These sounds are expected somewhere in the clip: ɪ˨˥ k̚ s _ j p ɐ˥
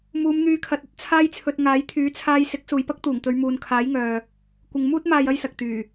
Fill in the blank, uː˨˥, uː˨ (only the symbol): uː˨